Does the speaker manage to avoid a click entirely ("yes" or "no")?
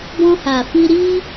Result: yes